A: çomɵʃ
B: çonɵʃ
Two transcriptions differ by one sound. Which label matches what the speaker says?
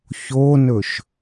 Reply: B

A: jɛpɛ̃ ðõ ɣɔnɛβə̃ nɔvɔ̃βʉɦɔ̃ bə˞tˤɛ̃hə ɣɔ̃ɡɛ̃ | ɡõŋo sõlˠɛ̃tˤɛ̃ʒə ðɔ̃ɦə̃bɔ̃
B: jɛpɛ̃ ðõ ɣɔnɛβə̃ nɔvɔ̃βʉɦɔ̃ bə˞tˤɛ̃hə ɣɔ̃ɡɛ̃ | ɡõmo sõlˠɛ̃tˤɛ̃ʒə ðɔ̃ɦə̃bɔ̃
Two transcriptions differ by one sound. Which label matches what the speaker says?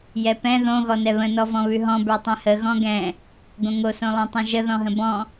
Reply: A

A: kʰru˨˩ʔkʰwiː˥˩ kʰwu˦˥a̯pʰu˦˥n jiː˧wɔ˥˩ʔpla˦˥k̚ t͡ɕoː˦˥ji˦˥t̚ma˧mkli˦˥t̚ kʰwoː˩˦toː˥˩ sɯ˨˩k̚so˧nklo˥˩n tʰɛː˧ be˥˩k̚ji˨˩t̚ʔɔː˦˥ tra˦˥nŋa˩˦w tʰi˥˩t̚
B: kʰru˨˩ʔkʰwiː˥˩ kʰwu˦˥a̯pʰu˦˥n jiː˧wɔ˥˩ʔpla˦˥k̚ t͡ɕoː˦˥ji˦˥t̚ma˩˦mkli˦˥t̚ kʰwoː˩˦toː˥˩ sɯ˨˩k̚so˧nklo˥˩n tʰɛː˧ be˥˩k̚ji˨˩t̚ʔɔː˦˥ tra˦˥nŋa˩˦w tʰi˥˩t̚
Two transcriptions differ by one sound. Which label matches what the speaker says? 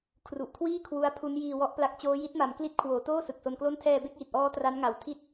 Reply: B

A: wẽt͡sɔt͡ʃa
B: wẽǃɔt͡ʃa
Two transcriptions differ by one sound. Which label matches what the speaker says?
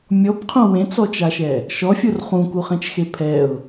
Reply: A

